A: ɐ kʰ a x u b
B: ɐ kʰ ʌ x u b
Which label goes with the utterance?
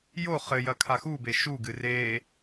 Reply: A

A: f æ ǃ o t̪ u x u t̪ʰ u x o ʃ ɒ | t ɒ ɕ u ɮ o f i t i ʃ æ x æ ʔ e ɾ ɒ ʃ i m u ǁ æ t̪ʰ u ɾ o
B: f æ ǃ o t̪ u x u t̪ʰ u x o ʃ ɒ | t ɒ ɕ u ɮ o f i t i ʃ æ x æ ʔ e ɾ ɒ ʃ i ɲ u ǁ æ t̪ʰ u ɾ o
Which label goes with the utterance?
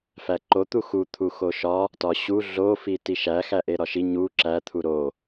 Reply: B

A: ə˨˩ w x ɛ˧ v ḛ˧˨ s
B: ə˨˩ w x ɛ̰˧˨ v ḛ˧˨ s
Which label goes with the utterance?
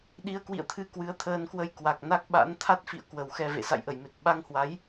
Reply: A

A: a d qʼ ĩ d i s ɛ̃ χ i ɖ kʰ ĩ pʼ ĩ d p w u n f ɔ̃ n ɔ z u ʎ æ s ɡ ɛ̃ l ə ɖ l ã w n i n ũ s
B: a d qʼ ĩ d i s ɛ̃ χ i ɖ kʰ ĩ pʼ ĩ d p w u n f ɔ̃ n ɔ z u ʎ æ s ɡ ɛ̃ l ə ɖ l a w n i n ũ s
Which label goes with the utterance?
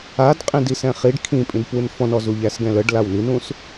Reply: B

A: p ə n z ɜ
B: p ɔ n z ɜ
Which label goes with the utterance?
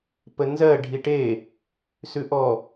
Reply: A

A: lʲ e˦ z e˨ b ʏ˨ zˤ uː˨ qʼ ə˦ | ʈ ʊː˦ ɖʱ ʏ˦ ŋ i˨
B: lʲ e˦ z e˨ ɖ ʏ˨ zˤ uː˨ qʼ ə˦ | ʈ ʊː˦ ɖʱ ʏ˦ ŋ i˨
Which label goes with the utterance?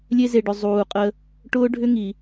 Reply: B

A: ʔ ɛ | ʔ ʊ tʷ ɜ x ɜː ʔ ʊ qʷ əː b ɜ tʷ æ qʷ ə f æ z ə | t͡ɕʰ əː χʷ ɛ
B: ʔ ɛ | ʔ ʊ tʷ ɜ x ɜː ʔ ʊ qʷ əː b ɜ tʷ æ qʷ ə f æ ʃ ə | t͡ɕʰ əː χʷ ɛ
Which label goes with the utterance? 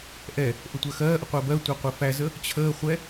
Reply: A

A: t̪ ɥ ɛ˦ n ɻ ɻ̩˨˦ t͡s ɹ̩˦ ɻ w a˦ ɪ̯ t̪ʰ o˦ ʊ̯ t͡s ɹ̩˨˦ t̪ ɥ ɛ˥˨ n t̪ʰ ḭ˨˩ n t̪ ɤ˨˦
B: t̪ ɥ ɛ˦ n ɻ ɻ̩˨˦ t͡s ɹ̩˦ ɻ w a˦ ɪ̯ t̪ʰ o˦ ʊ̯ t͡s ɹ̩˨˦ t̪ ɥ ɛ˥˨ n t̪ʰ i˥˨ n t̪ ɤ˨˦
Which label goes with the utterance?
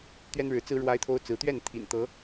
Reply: A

